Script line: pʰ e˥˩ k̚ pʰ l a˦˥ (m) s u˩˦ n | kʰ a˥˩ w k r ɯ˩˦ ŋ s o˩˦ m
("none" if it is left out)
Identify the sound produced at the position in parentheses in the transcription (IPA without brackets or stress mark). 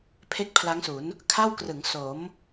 ŋ